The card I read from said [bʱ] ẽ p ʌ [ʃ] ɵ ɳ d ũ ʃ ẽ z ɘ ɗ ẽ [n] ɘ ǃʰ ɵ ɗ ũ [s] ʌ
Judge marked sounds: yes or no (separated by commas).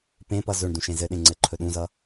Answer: no, no, no, no